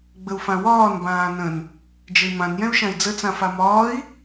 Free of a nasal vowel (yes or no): no